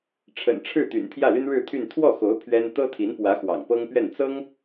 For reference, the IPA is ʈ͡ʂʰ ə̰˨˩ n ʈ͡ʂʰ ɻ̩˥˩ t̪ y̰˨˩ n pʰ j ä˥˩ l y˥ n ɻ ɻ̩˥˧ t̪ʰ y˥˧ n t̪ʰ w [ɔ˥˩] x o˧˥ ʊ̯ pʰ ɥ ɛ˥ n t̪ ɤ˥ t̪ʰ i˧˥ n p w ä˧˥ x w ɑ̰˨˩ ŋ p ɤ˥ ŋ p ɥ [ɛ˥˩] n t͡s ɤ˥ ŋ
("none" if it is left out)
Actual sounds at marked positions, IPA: ɔ˥˩, ɛ˥˩

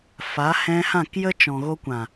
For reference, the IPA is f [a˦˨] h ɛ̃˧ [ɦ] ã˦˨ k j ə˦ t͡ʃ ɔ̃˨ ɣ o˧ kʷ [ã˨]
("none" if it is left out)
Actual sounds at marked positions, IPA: a˨˦, h, ã˨

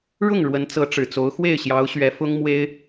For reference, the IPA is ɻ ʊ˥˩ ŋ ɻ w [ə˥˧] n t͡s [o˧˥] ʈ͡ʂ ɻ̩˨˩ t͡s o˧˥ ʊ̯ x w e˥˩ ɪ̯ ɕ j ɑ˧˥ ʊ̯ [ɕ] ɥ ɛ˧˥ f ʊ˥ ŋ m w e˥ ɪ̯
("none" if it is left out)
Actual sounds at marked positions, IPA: ə˧˥, ɤ˧˥, ɕ

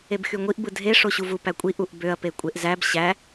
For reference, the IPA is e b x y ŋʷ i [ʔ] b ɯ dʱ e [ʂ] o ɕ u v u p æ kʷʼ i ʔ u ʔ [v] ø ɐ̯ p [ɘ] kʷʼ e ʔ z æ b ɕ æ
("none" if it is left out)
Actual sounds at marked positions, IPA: ʔ, ʂ, b, e

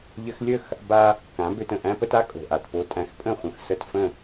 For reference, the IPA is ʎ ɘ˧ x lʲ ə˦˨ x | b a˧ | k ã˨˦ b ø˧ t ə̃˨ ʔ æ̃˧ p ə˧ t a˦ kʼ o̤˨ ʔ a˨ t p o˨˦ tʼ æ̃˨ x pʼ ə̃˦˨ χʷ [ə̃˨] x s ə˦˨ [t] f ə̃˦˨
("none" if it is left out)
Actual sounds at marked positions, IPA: ə̃˨, t

